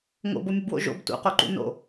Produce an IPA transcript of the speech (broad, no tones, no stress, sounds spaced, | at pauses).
ŋ o̰ b o mʲ ɵ b w o̰ ʒ o̰ b t ṵ q o ǃ ṵ n o̰